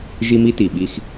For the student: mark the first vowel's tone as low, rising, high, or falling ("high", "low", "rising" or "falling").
high